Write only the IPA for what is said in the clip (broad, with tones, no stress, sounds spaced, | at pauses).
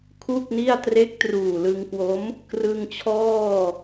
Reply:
kʰ u˥˩ k̚ n i˥˩ a̯ t r e˦˥ k̚ t r uː˨˩ l ɯ˧ ŋ k w o˦˥ m | k r ɯ˧ ŋ t͡ɕʰ ɔː˥˩